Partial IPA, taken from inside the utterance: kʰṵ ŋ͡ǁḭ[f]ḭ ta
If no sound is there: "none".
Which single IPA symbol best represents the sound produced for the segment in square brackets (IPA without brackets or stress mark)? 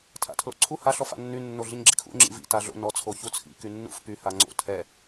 v